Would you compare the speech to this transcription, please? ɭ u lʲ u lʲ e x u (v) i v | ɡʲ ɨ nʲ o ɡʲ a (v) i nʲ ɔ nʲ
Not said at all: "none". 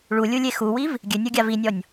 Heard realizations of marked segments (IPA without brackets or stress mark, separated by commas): w, v